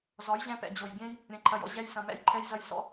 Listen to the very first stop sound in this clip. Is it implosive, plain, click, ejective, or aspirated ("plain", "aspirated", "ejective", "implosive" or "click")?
plain